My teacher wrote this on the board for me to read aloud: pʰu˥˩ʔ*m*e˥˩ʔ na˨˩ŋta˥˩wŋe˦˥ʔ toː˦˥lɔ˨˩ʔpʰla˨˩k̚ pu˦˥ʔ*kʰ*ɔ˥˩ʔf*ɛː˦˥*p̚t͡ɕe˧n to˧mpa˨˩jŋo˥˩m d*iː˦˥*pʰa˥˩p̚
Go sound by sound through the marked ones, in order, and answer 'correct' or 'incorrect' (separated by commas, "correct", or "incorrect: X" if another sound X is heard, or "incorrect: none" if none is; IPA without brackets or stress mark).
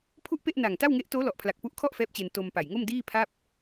incorrect: p, correct, correct, incorrect: iː˥˩